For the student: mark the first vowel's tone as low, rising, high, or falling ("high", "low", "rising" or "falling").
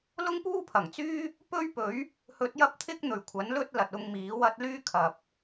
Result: high